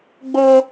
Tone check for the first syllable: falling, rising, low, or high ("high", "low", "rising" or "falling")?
high